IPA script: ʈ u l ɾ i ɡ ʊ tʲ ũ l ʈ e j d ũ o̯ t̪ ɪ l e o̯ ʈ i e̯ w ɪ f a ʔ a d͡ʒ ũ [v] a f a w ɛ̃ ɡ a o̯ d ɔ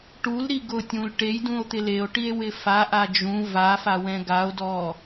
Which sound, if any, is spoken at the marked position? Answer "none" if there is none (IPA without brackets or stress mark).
v